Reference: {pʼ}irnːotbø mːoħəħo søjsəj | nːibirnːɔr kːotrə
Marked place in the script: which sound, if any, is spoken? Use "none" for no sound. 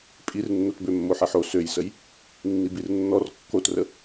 pʼ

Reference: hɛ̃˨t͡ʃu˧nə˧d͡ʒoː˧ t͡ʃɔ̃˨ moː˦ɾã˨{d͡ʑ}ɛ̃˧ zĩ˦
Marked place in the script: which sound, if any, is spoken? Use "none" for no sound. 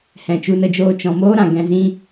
ɡ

